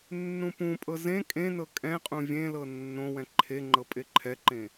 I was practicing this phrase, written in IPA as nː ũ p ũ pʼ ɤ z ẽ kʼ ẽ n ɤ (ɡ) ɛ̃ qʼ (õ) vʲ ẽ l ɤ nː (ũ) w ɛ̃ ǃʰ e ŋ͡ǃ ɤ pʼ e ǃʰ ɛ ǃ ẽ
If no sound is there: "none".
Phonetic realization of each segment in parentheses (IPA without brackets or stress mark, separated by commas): kʼ, ũ, õ